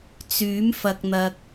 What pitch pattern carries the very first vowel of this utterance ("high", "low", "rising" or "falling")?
rising